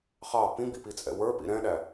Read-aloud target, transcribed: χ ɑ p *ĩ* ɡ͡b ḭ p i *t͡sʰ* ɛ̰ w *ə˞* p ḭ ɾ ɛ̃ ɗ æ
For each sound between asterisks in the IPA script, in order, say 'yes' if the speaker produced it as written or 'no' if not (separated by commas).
yes, no, yes